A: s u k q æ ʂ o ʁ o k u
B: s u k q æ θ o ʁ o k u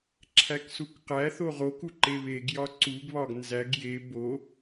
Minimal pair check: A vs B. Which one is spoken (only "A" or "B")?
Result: B